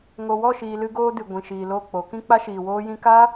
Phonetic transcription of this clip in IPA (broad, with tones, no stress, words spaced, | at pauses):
ŋo˨wɔ˦˨ʃiː˨ lɨ˦ɡoː˦dɨ˨ ɡʷĩ˨ʃiː˨lo˦˨k͡po˨˦ kĩ˦k͡pa˦ʃiː˨ woː˧jĩ˧kaː˦